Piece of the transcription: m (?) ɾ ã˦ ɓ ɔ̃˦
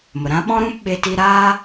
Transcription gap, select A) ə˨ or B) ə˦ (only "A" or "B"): A